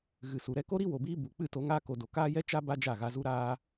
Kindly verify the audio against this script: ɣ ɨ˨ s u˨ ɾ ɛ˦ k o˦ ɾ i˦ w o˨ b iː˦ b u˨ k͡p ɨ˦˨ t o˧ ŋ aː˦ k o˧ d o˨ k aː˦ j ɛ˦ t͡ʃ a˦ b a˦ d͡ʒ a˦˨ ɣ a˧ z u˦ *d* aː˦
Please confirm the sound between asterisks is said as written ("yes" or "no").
no